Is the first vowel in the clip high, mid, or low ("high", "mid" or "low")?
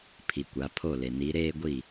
high